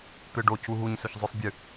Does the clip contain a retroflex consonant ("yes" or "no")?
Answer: yes